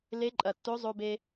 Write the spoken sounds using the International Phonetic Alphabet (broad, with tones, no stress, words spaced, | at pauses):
le˧˥ ǃʼɐ˩ tːo˧˥zˤo˧be˧